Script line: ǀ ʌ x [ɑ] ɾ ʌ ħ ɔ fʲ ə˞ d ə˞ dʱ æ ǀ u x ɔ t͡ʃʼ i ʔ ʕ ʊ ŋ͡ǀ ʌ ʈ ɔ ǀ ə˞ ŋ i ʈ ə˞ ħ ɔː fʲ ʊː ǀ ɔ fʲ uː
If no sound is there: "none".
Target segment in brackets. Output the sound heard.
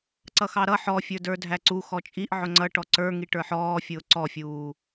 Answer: ɑ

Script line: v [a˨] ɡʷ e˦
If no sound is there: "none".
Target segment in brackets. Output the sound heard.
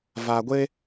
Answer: a˨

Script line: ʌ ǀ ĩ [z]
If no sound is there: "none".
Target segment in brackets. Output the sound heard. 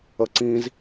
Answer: z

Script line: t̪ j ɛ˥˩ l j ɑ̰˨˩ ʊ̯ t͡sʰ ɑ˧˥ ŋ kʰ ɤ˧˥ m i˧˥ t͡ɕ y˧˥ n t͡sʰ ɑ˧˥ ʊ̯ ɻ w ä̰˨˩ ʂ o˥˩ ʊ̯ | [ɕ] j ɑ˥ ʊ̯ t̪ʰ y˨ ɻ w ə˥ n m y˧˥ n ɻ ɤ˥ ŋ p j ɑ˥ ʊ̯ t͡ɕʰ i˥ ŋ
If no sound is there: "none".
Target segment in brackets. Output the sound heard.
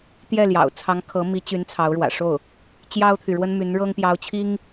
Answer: t͡ɕ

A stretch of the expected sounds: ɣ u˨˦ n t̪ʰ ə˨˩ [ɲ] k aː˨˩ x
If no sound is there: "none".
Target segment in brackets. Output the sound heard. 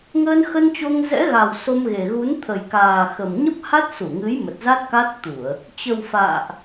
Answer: j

